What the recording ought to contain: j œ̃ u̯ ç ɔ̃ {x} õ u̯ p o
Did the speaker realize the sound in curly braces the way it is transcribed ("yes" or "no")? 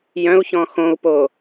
yes